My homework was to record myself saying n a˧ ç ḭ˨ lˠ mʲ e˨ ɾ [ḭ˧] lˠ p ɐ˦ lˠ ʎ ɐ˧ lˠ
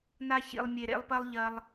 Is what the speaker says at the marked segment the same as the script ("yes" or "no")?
no